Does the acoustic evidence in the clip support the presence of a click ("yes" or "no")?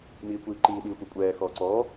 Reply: yes